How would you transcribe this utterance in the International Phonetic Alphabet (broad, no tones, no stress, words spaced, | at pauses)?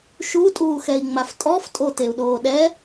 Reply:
ʃutʼuːxɛi̯ŋ͡maf tʼɔftʼoteu̯ɗoː ɗɛ